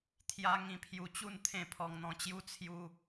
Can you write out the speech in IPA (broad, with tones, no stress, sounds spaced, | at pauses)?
t̪ʰ j a˦ ŋ ĩ˧ pʰ j u˧ t͡ɕ u˥˧ n t̪ʰ ẽ˥˧ pʰ ɔ˧ ŋ n̪ ɔ̃˧ t͡ɕ j u˦ t͡sʰ j u˦